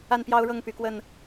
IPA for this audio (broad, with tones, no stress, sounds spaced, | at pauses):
a˥˨ n p j ɑ˦ ʊ̯ ɻ ɤ˥˨ ŋ p y˨˦ k w ə˥˨ n